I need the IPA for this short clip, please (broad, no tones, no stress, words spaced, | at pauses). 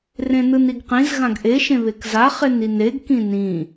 rẽnɯniɡqĩz ɣãɡʔe ʃẽβekza χenineɡ kĩnĩ